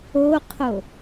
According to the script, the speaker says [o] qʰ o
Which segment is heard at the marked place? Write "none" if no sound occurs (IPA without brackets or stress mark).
o